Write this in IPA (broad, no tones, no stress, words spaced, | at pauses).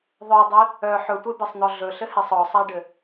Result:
ðˤœdˤe | œ ħɵtʷebesˤn̪ɔ ɮɵɬɘhesˤ ɔsˤaɖɘ